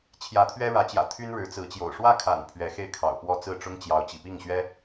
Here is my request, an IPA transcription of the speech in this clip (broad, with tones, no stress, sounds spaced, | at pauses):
t͡ɕʰ j ä˧˥ t̪ʰ ɥ ɛ˥ ɻ ä˧˥ t͡ɕ j ä̰˨˩ t̪ʰ y˥ n ɻ ɻ̩˧˥ t͡s ɹ̩˧˥ t͡ɕ j o̰˨˩ ʊ̯ ʂ w ä˥˩ kʰ a̰˨˩ n pʰ ɥ ɛ˧˥ x e˥˩ ɪ̯ kʰ ɑ̰˨˩ ʊ̯ p w ɔ˥˧ t͡s ɹ̩˥˩ ʈ͡ʂ ʊ˥ ŋ t͡ɕ j ɑ˧˥ ʊ̯ t͡ɕ ḭ˨˩ p i˥˩ ŋ ɕ ɥ ɛ˥